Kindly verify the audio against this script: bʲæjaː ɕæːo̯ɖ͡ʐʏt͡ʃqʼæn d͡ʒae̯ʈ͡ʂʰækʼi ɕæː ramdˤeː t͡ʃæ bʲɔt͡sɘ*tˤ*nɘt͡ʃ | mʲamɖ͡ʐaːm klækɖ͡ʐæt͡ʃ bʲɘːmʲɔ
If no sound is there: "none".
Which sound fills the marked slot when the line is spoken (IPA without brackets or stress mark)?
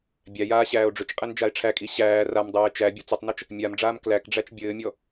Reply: tˤ